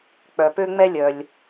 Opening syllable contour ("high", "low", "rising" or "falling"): low